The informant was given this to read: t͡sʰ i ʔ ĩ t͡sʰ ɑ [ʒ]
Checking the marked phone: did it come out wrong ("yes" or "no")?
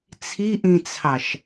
yes